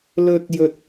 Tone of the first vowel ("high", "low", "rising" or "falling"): high